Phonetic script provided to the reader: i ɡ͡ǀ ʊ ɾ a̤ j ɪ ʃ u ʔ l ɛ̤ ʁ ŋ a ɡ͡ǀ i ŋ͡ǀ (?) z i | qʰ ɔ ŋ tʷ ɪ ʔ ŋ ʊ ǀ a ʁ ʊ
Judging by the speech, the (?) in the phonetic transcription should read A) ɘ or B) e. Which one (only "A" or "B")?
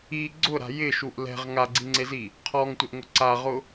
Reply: B